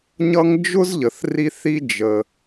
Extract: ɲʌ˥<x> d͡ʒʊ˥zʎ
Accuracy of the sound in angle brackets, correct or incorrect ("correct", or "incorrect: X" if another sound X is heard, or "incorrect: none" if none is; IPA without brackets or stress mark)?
incorrect: ŋ